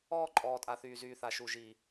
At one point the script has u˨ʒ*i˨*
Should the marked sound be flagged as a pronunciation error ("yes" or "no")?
yes